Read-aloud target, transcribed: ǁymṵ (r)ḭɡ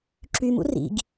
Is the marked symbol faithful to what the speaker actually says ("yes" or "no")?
yes